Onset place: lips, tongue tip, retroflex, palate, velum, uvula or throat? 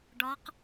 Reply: retroflex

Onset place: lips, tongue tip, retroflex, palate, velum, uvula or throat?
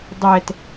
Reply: tongue tip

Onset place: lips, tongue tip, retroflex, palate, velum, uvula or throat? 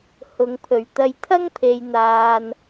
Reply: throat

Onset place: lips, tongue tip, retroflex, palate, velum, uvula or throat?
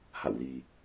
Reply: throat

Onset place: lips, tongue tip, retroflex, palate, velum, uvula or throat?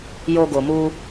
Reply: palate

